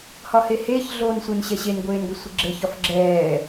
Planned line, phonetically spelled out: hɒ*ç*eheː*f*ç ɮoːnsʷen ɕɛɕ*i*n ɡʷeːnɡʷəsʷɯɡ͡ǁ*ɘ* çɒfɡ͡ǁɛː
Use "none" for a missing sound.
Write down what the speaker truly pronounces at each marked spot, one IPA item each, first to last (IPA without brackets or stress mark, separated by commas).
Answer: h, none, e, ɘ